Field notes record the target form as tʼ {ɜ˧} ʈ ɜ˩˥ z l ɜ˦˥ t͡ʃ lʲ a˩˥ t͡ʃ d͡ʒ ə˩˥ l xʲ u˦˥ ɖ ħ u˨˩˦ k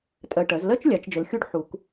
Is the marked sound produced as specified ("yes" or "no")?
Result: yes